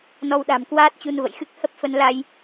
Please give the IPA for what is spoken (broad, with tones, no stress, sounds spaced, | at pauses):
n ɔ˧ w ɗ a̤˨˩ m k w aː˦˥ t̚ t͡ɕ u˧ n v ə̰˧˨ j x ɨ˦˥ k̚ h ə˦˥ p̚ f ə˧ n l a˧ j